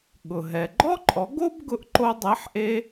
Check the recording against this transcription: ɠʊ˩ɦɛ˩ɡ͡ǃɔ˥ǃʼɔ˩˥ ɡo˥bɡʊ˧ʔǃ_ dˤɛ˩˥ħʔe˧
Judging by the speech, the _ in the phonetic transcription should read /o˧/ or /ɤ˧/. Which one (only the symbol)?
o˧